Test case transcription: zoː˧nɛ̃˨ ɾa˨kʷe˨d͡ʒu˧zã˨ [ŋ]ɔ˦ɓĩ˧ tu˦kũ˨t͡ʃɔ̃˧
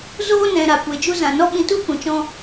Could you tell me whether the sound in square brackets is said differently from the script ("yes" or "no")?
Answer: yes